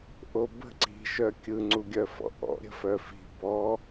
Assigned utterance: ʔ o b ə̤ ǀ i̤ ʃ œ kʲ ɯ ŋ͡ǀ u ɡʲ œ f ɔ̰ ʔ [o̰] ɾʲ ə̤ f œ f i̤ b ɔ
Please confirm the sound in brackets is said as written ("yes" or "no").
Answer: no